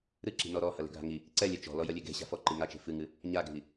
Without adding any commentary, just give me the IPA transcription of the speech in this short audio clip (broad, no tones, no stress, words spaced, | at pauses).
ɾɨǁi̤ nɔɾɔ hɐle̤ɡʱa̤ŋi | ǀɛ lʲɛt͡ʃɔ̤ lɔjɐlʲeɡe̤ ɕa̤fɔ ǃiŋa t͡ʃe̤fɨŋɨ | ɲaɡʱi